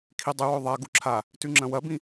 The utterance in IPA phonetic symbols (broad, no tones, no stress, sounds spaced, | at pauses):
kʰ i dˤ ɨ w o ðˤ a ɡ u ǁʰ a | t ʉ ŋ͡ǁ ɐ̃ w ɐ b ĩ